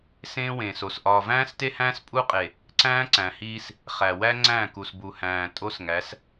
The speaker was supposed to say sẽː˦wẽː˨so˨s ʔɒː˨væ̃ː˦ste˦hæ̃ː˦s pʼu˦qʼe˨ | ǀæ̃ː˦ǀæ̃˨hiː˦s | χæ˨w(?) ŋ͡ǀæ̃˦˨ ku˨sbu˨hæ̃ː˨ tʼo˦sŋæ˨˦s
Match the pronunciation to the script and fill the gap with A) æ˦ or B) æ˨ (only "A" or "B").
A